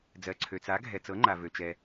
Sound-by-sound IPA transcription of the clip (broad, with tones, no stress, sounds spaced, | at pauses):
d͡z ɜ˩ ǀʰ ø˩ t͡s a˩˥ ɡʱ ɛ˩ t͡s ɤ˩˥ ŋ͡ǃ a˩ v ø˩ t͡ʃ ɛ˩